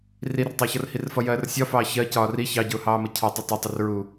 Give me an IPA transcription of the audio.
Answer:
r i r tˤ ɑ ç ʌ r h i r f ʌ j ɜː r sʲ ɒ f ɑː ç ɜ c ɒː r i ç ɑ ɟ ʊː h ɑː m ə cʰ ɒ tˤ ʊ tˤ ʌ tˤ ə r ɹ u

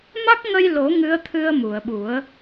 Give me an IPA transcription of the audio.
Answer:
m a˦˥ k̚ ŋ ə˧ j l o˨˩˦ ŋ ɨ˧˥ ə̯ t̪ʰ ɨ˧ ə̯ m u˨˩˨ ə̯ ɓ u˨˩˦ ə̯

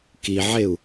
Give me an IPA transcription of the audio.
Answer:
k i ʕ e u̯

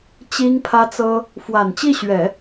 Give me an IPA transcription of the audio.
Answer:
t͡ɕ i˥ ŋ pʰ ä˥ t͡s ɤ˥ | f w a˨˩ n t͡ɕ i˥˩ ɕ ɥ ɛ˨˩˦

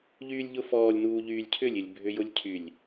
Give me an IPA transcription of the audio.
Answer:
ʎ yː lʲ ʎ ʊ f ɔː lʲ n uː ʎ yː lʲ cʰ ʏ lʲ ɪ lʲ bʱ ʏ j ʊ lʲ cʰ y lʲ

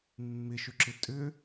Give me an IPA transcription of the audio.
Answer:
mː ɪ ʃ ø ǁ ɪ tʼ ʏ

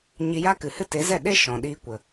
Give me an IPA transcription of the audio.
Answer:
ɲ i˧ j a˦ k ɨ˨ h ɨ˦ t e˨˦ z ɛ˦˨ ɗ e˦ ʃ ɔ̃˨ ɗ iː˧ kʷ ə˨

